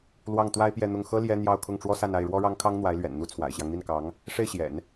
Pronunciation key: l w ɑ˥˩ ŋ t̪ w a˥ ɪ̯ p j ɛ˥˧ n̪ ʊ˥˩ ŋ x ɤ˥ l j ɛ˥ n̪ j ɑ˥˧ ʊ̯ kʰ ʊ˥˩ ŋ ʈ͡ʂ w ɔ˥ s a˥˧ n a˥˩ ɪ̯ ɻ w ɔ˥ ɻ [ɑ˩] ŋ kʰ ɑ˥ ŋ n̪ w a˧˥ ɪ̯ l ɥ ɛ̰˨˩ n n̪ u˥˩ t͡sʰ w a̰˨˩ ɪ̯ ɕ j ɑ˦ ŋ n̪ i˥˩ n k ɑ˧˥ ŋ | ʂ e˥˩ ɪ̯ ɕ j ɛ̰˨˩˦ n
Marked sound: incorrect: ɑ˥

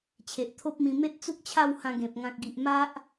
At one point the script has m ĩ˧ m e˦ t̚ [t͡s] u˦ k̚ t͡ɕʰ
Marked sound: correct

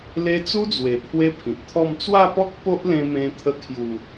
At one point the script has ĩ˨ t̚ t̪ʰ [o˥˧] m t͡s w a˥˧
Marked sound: incorrect: ɔ˥˧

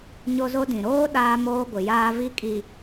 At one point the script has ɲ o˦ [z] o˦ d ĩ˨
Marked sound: correct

